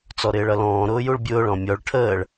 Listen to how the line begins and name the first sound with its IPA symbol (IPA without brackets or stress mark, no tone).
t͡s